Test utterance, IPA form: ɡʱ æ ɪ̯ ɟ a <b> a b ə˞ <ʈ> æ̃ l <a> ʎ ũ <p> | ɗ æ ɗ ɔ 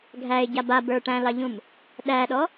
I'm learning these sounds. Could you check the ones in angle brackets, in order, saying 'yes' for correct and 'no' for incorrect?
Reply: yes, yes, no, no

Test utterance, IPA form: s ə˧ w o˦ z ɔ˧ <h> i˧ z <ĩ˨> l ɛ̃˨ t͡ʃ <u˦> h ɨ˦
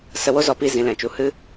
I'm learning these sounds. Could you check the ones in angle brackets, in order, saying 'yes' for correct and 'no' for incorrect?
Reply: no, yes, no

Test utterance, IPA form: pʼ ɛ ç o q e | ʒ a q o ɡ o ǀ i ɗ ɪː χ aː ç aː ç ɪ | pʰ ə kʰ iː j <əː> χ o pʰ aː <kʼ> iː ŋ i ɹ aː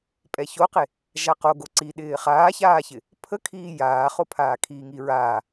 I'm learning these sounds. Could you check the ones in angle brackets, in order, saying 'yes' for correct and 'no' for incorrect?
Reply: no, no

